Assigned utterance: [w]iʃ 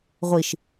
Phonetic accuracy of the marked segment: incorrect: ʁʷ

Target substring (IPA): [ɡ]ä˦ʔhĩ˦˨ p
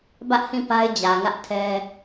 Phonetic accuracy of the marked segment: incorrect: b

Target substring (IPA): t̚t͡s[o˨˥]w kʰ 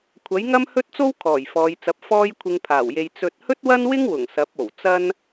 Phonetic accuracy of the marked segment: incorrect: o˥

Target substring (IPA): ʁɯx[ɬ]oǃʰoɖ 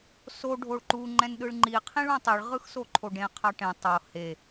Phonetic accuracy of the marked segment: incorrect: s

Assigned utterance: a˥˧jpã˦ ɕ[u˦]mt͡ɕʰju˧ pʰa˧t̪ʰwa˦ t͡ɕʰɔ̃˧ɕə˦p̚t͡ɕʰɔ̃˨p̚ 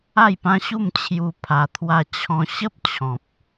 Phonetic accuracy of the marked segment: incorrect: u˥˧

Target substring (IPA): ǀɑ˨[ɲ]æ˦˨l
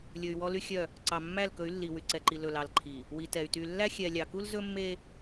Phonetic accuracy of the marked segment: incorrect: mː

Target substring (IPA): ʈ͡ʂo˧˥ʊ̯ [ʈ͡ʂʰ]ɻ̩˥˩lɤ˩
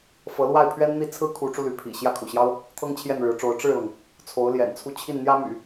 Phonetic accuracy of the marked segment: incorrect: ʈ͡ʂ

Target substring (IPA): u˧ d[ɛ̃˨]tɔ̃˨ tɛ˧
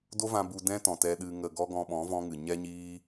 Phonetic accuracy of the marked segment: incorrect: ɛ̃˦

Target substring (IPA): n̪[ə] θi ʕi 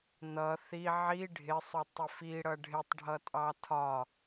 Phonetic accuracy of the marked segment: incorrect: ʌ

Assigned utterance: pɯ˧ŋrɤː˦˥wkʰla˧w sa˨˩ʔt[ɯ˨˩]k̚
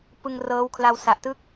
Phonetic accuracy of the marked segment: incorrect: ɯ˥˩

